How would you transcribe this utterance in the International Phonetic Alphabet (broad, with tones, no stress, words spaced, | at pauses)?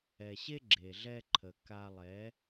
ɛ˨ɕe˦ ɡ͡ǁe˨ɮɛ˧ ǃʰə˨ka˧ lˠɛ˨˦